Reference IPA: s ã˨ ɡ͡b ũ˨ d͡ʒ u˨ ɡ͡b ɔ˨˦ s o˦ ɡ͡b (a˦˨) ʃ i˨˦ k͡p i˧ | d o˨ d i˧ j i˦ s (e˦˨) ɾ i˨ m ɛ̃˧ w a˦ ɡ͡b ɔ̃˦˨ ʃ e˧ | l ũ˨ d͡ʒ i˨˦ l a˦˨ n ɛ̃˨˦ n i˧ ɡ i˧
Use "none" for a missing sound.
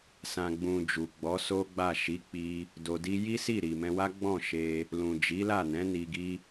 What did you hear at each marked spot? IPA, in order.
a˦˨, i˦˨

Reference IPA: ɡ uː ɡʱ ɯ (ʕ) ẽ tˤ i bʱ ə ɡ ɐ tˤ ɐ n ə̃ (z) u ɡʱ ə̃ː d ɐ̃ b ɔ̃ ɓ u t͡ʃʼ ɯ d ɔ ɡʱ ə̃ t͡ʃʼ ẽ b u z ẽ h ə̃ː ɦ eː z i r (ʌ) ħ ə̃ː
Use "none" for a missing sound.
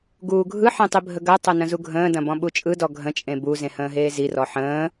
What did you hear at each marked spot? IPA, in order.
ħ, z, ɔ

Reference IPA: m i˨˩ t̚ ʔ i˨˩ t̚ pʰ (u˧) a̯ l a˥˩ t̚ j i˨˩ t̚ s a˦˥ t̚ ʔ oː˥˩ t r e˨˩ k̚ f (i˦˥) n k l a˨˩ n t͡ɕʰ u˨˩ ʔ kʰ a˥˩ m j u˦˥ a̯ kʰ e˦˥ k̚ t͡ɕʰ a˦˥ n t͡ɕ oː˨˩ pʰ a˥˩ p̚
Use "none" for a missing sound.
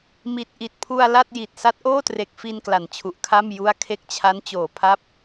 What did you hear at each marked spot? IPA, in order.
u˧, i˧

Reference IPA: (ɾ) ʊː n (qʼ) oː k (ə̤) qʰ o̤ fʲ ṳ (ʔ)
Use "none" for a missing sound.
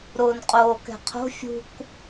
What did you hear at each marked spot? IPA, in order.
ɾ, qʼ, ɛ̤, k

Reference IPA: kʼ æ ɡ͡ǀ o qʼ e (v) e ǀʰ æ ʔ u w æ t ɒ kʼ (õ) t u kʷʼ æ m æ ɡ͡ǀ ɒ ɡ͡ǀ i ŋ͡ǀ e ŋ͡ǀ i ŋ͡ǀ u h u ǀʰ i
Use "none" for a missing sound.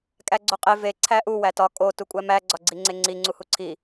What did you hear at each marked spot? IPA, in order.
v, o

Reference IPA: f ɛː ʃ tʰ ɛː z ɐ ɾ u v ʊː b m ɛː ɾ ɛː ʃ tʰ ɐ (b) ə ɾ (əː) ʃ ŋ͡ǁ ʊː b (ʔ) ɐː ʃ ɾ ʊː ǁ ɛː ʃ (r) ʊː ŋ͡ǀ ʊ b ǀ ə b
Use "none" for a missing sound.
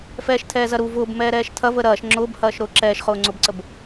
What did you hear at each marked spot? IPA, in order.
v, ɐː, h, χ

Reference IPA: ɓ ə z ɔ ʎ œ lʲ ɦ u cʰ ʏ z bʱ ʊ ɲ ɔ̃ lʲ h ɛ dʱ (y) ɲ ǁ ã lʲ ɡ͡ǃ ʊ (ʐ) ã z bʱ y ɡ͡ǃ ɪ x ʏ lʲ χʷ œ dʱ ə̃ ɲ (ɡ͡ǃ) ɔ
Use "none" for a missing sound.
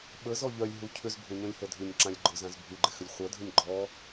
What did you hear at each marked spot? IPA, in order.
y, z, ɡ͡ǃ

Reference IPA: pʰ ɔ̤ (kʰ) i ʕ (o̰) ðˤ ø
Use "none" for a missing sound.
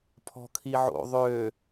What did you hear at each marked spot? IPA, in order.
kʰ, o̰

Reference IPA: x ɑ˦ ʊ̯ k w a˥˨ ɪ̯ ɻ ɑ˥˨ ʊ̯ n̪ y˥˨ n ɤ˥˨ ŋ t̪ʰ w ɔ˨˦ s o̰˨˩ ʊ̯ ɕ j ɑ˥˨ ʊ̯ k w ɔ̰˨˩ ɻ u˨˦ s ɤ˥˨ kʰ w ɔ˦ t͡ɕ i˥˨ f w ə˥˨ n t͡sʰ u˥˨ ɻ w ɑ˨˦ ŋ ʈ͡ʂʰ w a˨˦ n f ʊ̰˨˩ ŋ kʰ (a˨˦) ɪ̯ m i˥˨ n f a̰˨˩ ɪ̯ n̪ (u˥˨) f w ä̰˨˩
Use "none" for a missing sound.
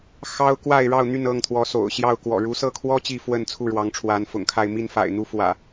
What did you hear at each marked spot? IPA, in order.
a˥˨, u˥˨

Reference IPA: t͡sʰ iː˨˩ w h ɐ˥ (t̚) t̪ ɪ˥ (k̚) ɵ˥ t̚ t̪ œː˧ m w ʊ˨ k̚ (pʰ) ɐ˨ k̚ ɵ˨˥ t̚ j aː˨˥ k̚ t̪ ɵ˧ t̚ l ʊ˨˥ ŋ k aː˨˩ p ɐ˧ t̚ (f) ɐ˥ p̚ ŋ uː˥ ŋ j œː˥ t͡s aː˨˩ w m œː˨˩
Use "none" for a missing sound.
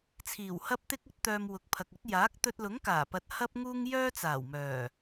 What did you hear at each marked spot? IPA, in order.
p̚, k̚, pʰ, h

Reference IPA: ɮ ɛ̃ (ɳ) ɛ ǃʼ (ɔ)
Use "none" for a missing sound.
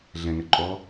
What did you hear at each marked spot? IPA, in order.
ŋ, ɔ

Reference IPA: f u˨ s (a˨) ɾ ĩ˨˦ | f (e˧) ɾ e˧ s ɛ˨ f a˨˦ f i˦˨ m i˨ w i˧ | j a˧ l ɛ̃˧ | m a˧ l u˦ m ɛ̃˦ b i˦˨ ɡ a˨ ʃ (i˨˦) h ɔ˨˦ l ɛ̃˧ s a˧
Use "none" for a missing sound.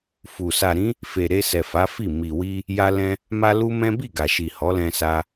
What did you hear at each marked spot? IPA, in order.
a˨, e˨, i˨

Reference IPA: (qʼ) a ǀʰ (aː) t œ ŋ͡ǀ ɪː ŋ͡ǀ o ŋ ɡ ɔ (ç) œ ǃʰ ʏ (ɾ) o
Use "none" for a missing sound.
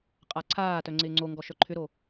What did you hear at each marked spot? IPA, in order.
qʼ, aː, ʃ, ɾ

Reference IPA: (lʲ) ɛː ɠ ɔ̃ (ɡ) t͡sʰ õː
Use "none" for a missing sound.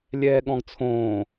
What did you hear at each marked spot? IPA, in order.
lʲ, ɡ

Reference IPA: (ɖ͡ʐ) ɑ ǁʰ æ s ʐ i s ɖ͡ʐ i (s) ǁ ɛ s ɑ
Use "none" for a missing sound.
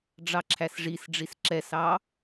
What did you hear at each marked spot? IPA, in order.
ɖ͡ʐ, s

